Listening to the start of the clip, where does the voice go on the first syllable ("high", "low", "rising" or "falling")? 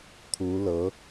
rising